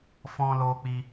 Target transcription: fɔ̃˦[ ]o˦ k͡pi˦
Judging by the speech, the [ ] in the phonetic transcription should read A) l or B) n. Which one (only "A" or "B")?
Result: A